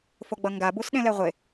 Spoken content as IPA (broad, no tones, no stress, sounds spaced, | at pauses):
f o ɡ͡b ʌ ŋ ɡ a b u s ɗ ẽ l ɛ ʁʷ e